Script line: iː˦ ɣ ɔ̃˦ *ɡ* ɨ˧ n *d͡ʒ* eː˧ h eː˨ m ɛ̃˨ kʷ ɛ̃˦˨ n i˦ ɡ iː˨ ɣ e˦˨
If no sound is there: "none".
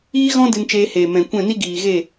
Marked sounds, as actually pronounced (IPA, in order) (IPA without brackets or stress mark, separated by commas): d, t͡ʃ